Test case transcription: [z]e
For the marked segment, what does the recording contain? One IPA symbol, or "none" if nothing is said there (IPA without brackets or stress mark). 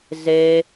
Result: z